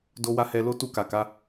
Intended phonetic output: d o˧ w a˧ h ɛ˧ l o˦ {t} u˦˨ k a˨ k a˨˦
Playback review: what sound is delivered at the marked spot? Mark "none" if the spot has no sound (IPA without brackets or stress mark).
t